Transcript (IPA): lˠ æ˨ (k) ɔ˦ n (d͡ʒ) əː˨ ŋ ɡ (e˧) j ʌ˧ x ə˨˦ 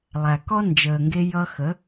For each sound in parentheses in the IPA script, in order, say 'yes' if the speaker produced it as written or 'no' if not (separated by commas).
yes, yes, yes